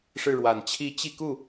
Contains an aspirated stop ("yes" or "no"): yes